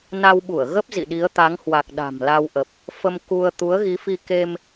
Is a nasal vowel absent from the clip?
yes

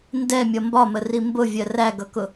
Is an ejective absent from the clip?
yes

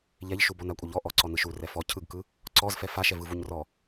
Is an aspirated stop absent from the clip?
no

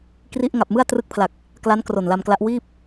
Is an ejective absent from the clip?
yes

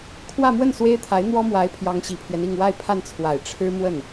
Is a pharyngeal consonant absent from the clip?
yes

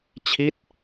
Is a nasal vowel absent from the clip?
yes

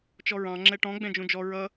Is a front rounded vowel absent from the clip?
yes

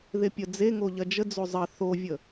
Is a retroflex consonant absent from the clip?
yes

